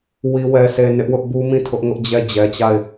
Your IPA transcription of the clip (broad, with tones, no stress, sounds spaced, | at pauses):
w i˨ w ɛ˨ s e˨ n ɪ˦ ʔ w ʊ˦ ʔ b u˦ m ĩ˦˨ tʰ ʊ˦ ʔ ŋ ʊ˦ ʔ d͡ʑ ɛ˦˨ d͡ʑ ɛ˨ t͡ɕ a˦˨ ɪ̯